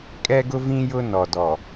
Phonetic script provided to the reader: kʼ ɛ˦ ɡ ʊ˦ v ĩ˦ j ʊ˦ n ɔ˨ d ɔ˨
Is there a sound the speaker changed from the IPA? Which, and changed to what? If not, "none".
none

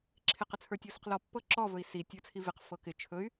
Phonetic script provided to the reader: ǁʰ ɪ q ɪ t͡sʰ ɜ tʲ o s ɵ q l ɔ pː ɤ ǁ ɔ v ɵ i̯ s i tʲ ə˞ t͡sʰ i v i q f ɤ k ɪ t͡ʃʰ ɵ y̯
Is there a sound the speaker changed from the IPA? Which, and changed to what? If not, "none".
ɜ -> ə˞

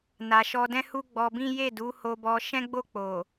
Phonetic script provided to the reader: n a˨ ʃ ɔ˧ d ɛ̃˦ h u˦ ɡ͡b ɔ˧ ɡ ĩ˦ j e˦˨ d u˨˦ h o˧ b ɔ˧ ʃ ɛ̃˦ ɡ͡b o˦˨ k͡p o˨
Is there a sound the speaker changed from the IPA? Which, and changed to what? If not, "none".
ɡ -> b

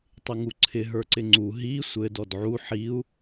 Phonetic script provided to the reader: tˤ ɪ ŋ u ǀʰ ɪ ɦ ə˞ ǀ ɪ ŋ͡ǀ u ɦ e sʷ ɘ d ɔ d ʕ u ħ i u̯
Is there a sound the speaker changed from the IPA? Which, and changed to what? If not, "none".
e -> i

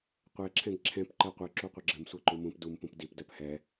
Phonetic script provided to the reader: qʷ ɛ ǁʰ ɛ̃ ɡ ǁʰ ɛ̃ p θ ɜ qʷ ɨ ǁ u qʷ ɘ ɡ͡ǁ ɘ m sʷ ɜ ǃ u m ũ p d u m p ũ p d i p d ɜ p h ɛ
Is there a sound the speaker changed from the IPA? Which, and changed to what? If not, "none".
θ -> ǃ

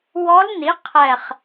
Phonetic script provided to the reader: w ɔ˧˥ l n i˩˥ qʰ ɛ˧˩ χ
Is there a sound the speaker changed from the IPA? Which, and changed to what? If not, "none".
none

